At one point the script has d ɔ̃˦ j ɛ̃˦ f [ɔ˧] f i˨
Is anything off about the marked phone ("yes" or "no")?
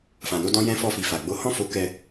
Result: no